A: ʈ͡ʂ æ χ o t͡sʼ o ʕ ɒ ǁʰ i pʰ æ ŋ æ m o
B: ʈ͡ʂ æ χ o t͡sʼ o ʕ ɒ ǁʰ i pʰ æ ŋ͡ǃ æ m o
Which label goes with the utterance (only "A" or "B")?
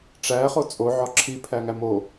A